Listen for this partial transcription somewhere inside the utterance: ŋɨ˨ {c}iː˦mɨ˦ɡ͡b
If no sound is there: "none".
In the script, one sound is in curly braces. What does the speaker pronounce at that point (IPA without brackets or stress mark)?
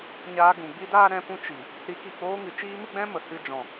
t͡ʃ